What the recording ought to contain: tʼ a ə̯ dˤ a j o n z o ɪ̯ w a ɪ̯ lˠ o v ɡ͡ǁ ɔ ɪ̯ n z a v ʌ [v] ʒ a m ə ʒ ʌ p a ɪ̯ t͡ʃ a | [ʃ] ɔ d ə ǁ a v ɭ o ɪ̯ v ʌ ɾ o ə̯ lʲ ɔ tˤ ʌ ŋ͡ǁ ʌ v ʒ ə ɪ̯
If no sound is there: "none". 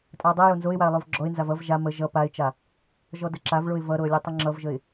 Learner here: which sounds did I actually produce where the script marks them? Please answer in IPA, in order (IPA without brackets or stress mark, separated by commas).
v, ʒ